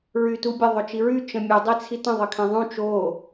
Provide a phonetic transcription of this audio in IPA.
ɹ y t u bʲ ə ðˤ o t͡ʃ i ɹ y t͡ʃ ə̃ mʲ u dˤ i t͡sʰ i t ə̃ ðˤ ə kʰ ɛ̃ ðˤ ũ t͡ʃ o

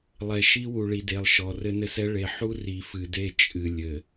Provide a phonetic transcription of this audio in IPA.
lˠ ɛ˨ ʃ i˦ w u˨ ɭ i˨ d e˨ lˠ ʃ ɔ˨ r ɘ˦ n ɘ˦ s ɛ˦ ɭ e˨ ħ u˦ r i˨ f ɨ˨ d e˦˨ t͡ʃʼ ɨ˨ lʲ ɘ˨

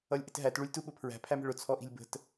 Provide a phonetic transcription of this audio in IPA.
ʌ lʲ ʔ ɪ t ɦ æ t ɭ u lʲ t u ɓ ʊ pʰ ɹ æ̤ pʰ æ m ə̤ ɭ ʊ t͡sʰ ɔ ʔ i̤ lʲ b ə̤ t

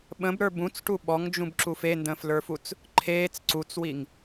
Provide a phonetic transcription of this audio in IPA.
ɓ ə̃ b ɾ ə˞ b ũ t͡s ʈ u ɓ ɔ ŋ d͡ʒ ũ b ǁ u f e n d ə̃ː f l ə˞ f u t͡s | ǃʰ eː t͡s ǀ u t͡s w i ŋ

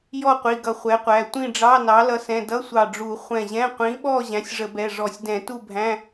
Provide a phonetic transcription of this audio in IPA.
j ɔ˥˨ qʷ i˩˧˩ ɡ ʌ˧˩ χʷ ɛ˩˥ qʷ æ˩˧˩ tʷ ĩ˥˨ ɖ͡ʐ ɑ˧˥˧ n ɑ˩˥ l ʌ˩˥ s ɛ̃˩˧˩ d ʌ˧˥˧ sʷ ɑ˧˩ ɖ͡ʐ u˧˩˧ χʷ ɛ̃˧˩ ʑ ɛ̃˧˥˧ qʷ ĩ˩˥ ɓ ɔ˥˨ ʑ æ̃˩˥ sʲ ʐ ə˧˩˧ b ɛ˩˧˩ ʐ ɔ˧˩˧ sʲ d ɛ̃˧˩˧ t u˥˨ bʱ æ̃˧˥˧

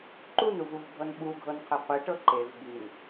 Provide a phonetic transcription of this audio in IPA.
ǃ u n u v u v bʱ ɤ n ɓ u ɡʱ ɤ n qʰ e qʷ i ʈ ɤ ǃ e v b i n

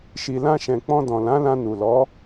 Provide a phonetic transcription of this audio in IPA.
ʃ i˨ l ã˧ ʃ ɛ̃˨ k͡p ɔ̃˧ d ɔ̃˨ l ã˨˦ l ã˧ n u˨ l ɔ˨˦

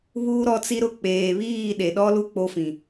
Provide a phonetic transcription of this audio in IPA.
β uː˦ ɾ ɔ˦ t͡s i˦ ɾ ʊ˦˨ k͡p eː˨ β iː˦˨ ɗ e˨ ɗ ɔ˦ l u˦ k͡p o˦ f ĩ˨

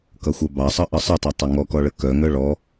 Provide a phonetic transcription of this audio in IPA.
k ʌ xʷ œ b ɑ sˤ ʌ ʔ ʌ sˤ ə tˤ ʌ tˤ œ ŋ ɔ k ɔ ɭ ə k œ ŋ œ ɭ ɔ

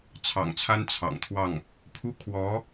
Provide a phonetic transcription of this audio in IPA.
t͡sʰ ɑ̰˨˩ ŋ t͡sʰ a˥ n t͡sʰ ɑ̰˨˩ ŋ t̪ʰ w ɑ˥˩ ŋ | pʰ u˥˩ kʰ w ɔ˧˥

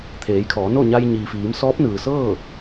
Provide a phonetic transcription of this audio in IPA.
t̪ʰ eː˩˧ j kʰ ɔː˩˧ n o˥˨ ɲ a˧ j ɲ iː˩ f iː˩˧ m s ɔː˧˥ p̚ n ɯː˩ s ɤː˥˨

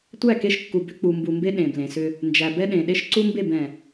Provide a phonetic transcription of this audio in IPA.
tʷ æ˦˨ k e˦ ʃ kː u˨ b ʏ˦ k͡p u˨ m b u˨ m b e˦ ɗ ẽ˨ b l ẽ˨ s ʏ˦ | n d͡ʒ æ˨ b ɛ˦ ɗ ẽ˨ ɗ e˦ ʃ ǀ u˦ m b e˦˨ b ɛ̃˨

